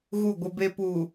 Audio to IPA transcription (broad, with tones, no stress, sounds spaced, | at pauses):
ɣ u˦˨ ɡʷ ɪ˦ b e˦ p uː˨